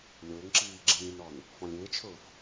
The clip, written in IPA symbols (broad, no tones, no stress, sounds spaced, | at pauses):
lʲ ʊː ŋ ǁ iː ɡ͡ǁ ĩː n ɔ n | f ɔ̃ lʲ ɪː t͡ʃʰ ʊː f